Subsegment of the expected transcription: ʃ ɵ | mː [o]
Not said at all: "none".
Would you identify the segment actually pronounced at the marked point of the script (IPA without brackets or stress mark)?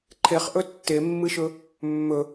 ɵ